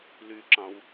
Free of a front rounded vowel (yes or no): no